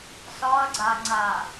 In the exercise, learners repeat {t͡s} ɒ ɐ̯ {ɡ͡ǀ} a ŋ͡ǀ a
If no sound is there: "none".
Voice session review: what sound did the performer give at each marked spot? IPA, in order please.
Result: s, ɡ͡ǀ

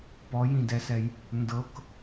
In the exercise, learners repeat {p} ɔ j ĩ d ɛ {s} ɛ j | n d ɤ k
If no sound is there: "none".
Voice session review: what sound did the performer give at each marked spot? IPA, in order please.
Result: p, s

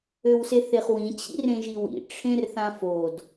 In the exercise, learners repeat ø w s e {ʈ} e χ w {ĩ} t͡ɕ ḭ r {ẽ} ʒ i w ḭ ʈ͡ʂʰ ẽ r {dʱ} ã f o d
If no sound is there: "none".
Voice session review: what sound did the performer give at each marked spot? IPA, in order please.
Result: θ, ĩ, ẽ, θ

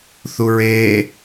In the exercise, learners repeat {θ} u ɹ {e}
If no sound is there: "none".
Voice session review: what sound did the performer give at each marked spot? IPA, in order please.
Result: θ, e

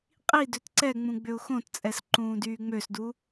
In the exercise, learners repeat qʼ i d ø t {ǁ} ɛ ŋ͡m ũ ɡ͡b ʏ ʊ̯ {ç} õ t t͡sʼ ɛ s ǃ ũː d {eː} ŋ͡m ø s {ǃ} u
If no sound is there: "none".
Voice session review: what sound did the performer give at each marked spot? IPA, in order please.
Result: ǀ, x, yː, d

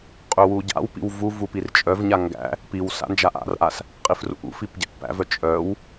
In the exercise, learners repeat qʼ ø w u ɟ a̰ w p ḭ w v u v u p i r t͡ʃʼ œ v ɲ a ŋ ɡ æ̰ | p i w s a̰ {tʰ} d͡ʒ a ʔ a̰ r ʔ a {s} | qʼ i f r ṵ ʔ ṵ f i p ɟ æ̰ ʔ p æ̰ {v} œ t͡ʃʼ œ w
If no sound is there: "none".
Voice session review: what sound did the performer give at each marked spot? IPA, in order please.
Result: n, s, v

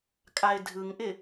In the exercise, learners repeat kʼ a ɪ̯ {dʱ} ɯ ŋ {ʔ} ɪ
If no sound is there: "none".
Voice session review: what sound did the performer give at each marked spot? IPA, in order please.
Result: dʱ, ʔ

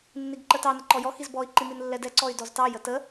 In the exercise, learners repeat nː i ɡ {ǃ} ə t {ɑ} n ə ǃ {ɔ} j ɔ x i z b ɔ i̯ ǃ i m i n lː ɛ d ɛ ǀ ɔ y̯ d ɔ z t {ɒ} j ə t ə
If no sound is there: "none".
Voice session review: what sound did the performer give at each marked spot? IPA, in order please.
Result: ǃ, ɑ, ɔ, ɑ

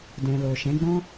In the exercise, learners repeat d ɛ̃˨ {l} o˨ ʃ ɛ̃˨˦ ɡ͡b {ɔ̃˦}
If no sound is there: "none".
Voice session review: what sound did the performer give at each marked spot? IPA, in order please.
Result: l, ɔ̃˦

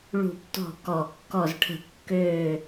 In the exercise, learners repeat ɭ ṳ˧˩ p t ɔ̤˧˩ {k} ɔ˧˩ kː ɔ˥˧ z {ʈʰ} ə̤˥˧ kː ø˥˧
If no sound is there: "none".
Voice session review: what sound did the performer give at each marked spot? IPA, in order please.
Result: k, ʈʰ

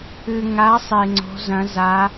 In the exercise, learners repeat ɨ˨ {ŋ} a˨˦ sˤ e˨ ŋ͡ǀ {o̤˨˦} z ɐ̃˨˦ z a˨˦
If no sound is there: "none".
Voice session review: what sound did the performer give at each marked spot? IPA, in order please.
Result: ŋ, o̤˨˦

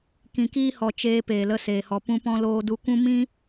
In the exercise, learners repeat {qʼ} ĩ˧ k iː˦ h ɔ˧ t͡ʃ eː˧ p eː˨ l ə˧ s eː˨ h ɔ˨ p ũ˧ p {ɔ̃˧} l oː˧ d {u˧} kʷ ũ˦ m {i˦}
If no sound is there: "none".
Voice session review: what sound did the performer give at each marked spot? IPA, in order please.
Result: k, ɔ̃˧, u˧, ĩ˦

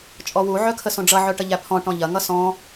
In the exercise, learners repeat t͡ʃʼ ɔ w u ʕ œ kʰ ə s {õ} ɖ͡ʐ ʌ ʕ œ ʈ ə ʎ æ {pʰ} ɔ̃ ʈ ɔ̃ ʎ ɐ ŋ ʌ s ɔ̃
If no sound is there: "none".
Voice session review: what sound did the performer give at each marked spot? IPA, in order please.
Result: õ, pʰ

